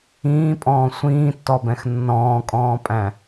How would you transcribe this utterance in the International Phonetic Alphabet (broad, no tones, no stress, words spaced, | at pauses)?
ĩːpʼɔ̃ː sʷĩːtːɔbɛ̃x nːɔ̃ːkʼɔ̃ːpʼæ̃